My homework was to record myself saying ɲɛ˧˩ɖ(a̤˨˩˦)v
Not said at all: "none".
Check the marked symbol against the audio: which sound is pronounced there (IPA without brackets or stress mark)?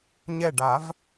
a˨˩˦